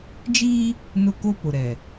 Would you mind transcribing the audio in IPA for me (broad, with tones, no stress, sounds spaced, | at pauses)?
d͡ʒ iː˦ | n ʊ˦ k o˦ p ʊ˨ ɾ ɛ˨